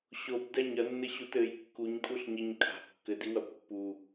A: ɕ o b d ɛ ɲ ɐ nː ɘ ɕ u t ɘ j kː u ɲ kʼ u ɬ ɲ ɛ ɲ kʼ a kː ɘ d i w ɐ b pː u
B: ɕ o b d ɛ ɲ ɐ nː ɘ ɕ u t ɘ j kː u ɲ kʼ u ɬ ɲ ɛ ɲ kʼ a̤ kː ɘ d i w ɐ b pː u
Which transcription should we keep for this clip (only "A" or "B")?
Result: B